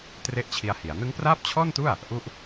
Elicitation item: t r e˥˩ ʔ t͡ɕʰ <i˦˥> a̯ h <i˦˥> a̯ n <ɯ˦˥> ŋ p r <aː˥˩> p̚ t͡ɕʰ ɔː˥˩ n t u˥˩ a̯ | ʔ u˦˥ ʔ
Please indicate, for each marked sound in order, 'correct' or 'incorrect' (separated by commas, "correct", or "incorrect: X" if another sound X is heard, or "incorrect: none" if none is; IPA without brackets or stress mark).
incorrect: i˧, incorrect: i˩˦, correct, correct